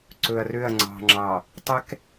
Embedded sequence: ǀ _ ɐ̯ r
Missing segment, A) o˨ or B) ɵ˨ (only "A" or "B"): B